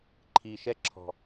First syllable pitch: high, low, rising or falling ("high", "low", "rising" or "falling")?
low